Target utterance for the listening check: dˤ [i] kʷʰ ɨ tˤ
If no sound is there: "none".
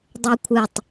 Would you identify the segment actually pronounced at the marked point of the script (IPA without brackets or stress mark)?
e